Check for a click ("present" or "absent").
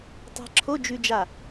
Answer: present